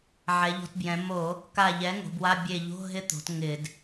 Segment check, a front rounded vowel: absent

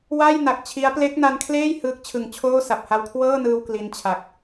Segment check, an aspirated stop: present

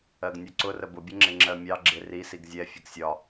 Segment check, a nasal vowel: absent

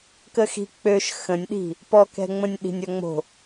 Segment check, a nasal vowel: present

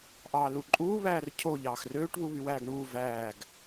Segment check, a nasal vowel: absent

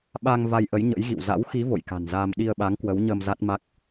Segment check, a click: absent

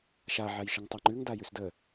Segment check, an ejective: absent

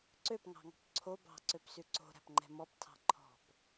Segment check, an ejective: absent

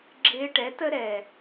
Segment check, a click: present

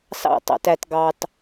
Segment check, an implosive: absent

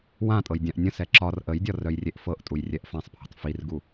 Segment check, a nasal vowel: present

